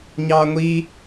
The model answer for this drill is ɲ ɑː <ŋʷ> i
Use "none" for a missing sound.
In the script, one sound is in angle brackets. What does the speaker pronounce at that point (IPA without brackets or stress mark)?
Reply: ŋʷ